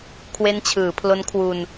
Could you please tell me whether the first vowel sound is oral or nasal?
oral